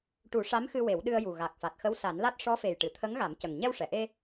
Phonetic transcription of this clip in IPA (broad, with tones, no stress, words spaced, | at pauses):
ʈu˨˩˦ʂa˧˥mxɨ˧ we˨˩˦wɗɨ˧ə̯ju˨˩ ɣa˨˩k̚fa˨˩t̚ xə˧˥wsa˨˩˦nla˦˥t̚ ʂɔ˧˥fe˨˩jʈɨ˨˩˨ t̪ʰə˧˥ŋɣa˨˩˦mcə˨˩ŋ ɲɛ˧wʂɛ˨˩˨ʔe˧